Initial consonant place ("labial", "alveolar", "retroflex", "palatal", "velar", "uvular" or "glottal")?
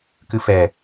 velar